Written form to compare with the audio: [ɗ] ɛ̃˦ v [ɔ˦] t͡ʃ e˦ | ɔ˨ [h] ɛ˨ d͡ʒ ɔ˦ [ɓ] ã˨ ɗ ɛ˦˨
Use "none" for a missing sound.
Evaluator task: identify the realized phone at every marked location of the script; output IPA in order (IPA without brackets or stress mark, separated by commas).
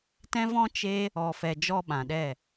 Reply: t, ɔ̃˦, f, ɓ